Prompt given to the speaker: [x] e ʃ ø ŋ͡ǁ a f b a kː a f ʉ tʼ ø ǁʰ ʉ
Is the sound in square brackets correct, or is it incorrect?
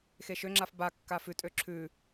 correct